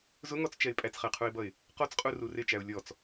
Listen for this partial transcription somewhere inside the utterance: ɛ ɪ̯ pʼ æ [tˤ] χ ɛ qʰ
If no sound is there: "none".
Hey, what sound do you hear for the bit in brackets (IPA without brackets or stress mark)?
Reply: t͡s